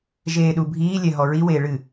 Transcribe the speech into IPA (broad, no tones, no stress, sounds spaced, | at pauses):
ʒ eː ɗ u bʱ iː lʲ ɛ ɦ ɔ ɹ i w eː ɭ ɨ